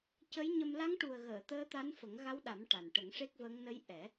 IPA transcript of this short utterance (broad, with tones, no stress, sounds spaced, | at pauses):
c ə˧˥ j ɲ ə˧ m l a˧˥ ŋ ʈ u˨˩ ə̯ ɣ əː˨˩˨ t̪ əː˧˥ t̪ a˧˥ n f ə˨˩˦ ŋ ɣ a˧˥ w ɗ a˨˩˦ m ʈ a˨˩ n ʈ ə˨˩˦ ŋ ʂ e˦˥ k̚ v ə˧˥ ŋ n ə˧˥ j ʔ ɛ˨˩˦